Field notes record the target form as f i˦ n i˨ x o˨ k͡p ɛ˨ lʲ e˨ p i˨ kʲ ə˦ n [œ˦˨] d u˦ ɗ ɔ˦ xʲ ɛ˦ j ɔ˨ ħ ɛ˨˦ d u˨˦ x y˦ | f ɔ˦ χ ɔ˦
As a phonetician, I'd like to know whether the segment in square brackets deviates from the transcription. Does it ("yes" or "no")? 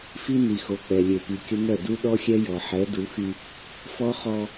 no